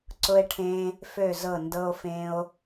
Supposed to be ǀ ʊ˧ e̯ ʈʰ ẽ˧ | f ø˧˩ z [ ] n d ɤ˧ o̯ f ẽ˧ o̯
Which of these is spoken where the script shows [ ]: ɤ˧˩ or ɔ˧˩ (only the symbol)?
ɤ˧˩